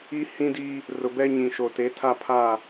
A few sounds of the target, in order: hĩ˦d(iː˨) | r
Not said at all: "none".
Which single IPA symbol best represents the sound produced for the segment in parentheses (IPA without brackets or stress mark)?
iː˦